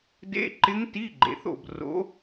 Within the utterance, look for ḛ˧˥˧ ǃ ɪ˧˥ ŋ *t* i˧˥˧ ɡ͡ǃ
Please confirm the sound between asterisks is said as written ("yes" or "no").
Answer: yes